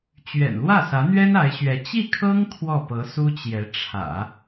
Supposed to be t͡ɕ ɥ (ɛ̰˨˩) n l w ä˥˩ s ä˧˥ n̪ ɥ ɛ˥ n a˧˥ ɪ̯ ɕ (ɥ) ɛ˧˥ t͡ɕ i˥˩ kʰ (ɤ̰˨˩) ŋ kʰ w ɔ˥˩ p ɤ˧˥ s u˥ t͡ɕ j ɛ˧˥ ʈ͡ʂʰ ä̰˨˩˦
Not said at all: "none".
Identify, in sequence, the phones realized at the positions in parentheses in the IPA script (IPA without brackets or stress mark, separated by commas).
ɛ̰˨˩, ɥ, ɤ˥